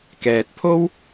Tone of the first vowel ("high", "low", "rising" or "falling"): low